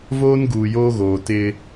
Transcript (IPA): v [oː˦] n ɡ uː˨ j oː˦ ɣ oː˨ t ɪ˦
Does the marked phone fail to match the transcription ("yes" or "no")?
no